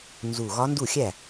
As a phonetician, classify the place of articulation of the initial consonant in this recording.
alveolar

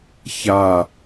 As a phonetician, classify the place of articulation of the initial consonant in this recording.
palatal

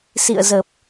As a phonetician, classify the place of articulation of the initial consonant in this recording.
alveolar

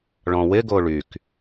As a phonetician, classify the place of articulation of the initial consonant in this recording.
retroflex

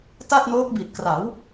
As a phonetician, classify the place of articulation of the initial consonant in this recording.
alveolar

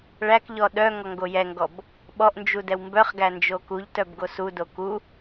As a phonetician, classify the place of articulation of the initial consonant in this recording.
retroflex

